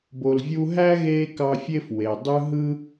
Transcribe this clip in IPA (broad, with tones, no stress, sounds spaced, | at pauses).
b o˨ l vʲ u˦ ɦ æ˥ ɣ eː˦ k ɑ˦ fʲ e˥ f w e˩ dˤ ɯ˦ ɦ ɯ˥